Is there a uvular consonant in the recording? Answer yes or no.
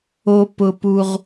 yes